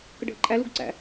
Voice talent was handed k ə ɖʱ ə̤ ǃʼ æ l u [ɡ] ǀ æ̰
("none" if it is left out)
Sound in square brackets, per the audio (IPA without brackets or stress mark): ɡ